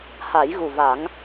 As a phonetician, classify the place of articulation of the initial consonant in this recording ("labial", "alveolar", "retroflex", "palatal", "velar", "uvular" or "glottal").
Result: glottal